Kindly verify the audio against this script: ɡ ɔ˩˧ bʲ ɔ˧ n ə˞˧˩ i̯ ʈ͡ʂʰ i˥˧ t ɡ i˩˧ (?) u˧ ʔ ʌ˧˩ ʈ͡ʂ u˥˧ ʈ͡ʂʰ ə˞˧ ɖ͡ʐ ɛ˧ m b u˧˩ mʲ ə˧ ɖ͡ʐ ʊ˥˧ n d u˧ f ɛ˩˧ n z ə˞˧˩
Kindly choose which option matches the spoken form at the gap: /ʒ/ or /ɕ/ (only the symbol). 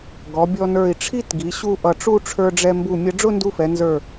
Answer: ɕ